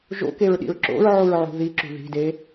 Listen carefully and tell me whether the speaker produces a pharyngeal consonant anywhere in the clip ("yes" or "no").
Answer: yes